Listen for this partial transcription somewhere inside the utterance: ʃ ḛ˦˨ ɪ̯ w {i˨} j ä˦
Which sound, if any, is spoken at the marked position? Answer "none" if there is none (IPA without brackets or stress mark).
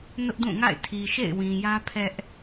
ĩ˨